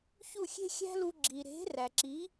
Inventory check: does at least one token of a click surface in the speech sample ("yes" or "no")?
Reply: yes